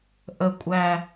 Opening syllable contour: low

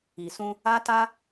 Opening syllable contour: low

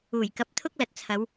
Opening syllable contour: low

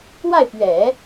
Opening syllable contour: falling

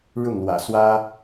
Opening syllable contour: falling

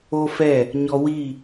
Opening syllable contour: high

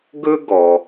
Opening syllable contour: high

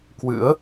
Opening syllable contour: rising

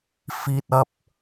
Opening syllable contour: low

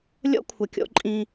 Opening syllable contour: high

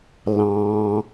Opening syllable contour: high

